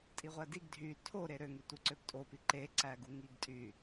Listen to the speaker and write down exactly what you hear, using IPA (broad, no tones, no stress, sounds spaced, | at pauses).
tʼ i ʁʷ æ d i ɡ dʱ y tʰ o ɾ e ɾ ø ŋ y tʷ ɯ ǀ ø p tʼ o p i ǃ e ǀ æ ɡ u ŋ i ɡ tʼ y